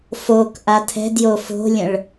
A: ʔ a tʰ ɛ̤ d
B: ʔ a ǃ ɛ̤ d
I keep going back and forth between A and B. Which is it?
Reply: A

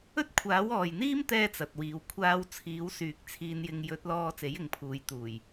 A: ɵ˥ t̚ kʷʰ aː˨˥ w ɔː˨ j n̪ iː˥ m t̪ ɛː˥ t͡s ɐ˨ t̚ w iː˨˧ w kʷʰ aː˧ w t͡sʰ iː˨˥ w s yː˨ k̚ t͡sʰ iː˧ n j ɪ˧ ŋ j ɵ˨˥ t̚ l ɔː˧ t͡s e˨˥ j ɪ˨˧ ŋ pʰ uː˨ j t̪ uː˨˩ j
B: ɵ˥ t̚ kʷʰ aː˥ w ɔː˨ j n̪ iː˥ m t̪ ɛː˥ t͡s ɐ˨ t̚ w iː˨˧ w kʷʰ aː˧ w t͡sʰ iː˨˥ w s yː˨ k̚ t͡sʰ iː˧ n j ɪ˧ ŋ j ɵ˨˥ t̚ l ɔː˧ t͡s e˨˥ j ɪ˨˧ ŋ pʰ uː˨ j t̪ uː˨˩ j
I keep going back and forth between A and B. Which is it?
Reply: A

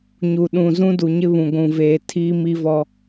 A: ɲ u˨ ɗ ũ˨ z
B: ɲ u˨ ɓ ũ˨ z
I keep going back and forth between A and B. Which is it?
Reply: A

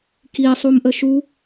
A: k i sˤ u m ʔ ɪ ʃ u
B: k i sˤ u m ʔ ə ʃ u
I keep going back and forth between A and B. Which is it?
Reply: B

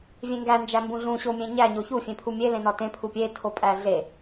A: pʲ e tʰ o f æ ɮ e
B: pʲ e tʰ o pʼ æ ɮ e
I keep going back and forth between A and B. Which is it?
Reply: B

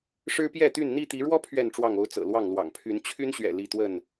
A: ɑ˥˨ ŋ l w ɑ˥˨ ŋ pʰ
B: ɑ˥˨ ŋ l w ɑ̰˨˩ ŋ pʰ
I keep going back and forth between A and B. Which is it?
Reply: B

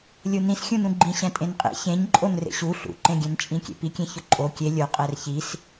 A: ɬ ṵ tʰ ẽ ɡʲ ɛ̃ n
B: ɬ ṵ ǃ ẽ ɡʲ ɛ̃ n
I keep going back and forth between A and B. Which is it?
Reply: B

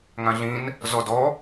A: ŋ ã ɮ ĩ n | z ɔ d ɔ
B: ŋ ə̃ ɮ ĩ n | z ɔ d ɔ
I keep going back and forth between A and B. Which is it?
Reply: A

